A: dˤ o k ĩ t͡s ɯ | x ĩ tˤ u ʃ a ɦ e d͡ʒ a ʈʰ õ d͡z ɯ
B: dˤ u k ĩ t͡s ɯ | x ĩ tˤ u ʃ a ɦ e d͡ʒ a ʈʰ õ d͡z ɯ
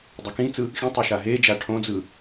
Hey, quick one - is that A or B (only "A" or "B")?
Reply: B